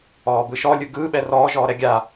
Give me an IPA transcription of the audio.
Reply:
ɔː b ɯ ʃ ɔ lʲ ɯ ɡ ɯː ɓ ɛ r ɔː ʒ ɔː ɾ ɛ ɡʲ a

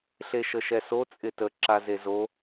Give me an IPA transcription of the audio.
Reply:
ɬ e ʃ ə ʃ ɛ s o t͡sʼ ɪ t ə ǁ a z e z o

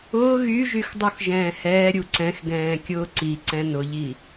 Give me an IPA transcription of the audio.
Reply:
ʊː ɣ y ʒ y x dˤ u x ʒ ɛ̃ː h ɛː ɾʲ u ǀ ɛ̃ x ɡ ɛ̃ː kʲ ʊː ǀ i ǀ ɛ̃ n ʊ ʎ i

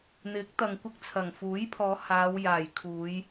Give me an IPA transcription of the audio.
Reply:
n̪ ɪ˨˥ k̚ t̪ ɐ˨ ŋ kʷ ɪ˧ k̚ t͡sʰ ɐ˨˩ ŋ f uː˨˥ j pʰ ɔː˨˧ h aː˨˧ w j aː˨˩ j kʰ uː˨˧ j

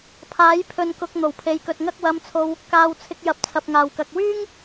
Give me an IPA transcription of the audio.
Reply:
pʰ aː˨˥ j pʰ ɵ˨ n k ʊ˨ k̚ n̪ o˨˩ w pʰ e˨˧ j k ɵ˨ t̚ ŋ ɐ˧ k̚ w ɐ˨˧ m t͡sʰ o˨ w | k aː˧ w t͡sʰ ɪ˧ k̚ j ɐ˨ p̚ t͡sʰ ɐ˨ p̚ ŋ aː˨˩ w k ɐ˨ k̚ w yː˥ ŋ

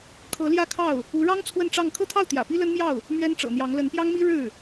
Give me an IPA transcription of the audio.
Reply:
kʰ ɤ˧˥ l j ä˥˧ kʰ ɑ˥˩ ʊ̯ | u˧˥ ɻ ɑ˥ ŋ t͡sʰ w ə˥˧ n ʈ͡ʂ ɑ˥˩ ŋ kʰ ɤ˥ t̪ʰ ɑ˥˩ ʊ̯ t̪ j ä̰˨˩ p i˥ l ə˥ n m j ɑ˥˩ ʊ̯ | m ɥ ɛ˥ n ʈ͡ʂ ɤ̰˨˩ n̪ j ɑ˧˥ ŋ l ə˧˥ n p j ɑ˥ ŋ m i˥ ɻ ɻ̩˥˩

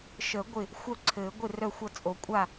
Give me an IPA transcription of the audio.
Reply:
ʃ ə˨˩˦ ɡʷ ɪ˥˩ | xʷ œ˥˩ ǀʰ ɘː˨˩˦ ɡʷ ɪ˥˩ r œ˥˩ xʷ ʌ˥˩ t͡sʼ o˨˩˦ kʷʼ a˥˩

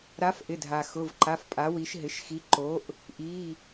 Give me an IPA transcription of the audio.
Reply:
ɾ a˨˥ f ʔ ɪ˩˧˩ dʱ a˩ x ʊ˩˧˩ v ǃ a˩˧˩ f pʼ a˨˥ w i˨˥ ʃ ɦ ɪ˩˧˩ ʃ x i˨˥ ǃ o˨˥ ʔ | ʔ i˩˧˩

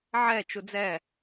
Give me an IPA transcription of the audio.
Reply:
ʕ ɛ t͡ʃ u d͡z ɛ

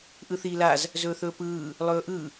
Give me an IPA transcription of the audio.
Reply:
ʔ ɯ θ iː l a z | z ɵː θ ɵː p ɯː | lˠ ɵː ʔ ɯ

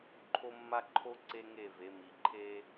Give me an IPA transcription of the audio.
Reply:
ǃʰ o˦ mː a˦ ǃʰ o˦ ǀ e˦ ŋ e˦˨ v e˨˦ m i˨ ǃʰ e˦

